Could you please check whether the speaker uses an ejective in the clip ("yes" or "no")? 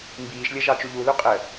yes